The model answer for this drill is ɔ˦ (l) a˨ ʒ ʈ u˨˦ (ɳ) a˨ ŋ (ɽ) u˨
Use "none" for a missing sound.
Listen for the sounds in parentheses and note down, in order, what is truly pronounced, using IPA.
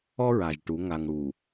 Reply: ɹ, ŋ, ɽ

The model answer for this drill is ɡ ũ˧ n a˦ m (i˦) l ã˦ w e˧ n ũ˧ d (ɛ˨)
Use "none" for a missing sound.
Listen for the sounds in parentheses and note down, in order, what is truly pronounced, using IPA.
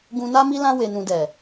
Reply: i˦, ɛ˨

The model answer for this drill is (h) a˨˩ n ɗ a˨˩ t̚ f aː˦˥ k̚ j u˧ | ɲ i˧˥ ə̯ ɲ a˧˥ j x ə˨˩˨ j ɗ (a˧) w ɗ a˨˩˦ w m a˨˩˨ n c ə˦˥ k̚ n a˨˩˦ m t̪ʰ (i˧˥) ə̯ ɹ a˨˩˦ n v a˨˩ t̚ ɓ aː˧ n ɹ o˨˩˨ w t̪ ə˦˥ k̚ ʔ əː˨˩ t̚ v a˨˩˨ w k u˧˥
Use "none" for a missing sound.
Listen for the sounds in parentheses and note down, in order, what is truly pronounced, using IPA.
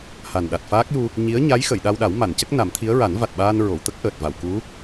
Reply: h, a˧, i˧˥

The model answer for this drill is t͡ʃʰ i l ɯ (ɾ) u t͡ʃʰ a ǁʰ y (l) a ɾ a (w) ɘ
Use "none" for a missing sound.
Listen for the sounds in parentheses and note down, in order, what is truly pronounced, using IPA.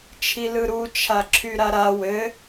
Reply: ɾ, ɾ, w

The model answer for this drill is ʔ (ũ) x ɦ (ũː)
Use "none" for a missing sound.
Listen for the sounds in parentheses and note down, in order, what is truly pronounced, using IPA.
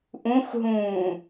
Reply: ũ, ũː

